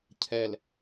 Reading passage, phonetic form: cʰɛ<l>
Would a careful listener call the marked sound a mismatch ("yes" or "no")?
no